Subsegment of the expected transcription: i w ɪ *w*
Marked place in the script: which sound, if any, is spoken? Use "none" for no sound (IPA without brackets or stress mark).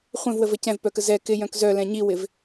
v